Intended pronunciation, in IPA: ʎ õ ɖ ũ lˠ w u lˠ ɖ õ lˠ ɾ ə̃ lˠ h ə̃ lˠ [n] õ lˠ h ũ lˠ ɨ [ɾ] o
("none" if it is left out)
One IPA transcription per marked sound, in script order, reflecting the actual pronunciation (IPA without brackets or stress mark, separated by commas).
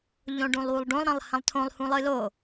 tʰ, l